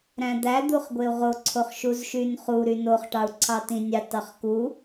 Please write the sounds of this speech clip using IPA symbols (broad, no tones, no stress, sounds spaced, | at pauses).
ɾ æ̃ d̪ æ d̪ u χ ɡʷ e u̯ ʁ o ǀʰ o χ ʃ u z ʃ y n χ u ɾ y n o χ ʈ ɑ u̯ ǀʰ ɑ t ĩ nʲ ɑ t ɑ χ k u